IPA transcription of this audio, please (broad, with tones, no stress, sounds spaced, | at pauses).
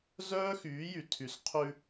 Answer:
z œː˦ x yː˨˦ j y˨ tʰ y˨ s qʰ ʉ˦